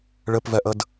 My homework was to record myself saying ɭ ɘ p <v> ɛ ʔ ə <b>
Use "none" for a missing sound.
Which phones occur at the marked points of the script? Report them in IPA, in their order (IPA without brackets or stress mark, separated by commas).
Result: v, d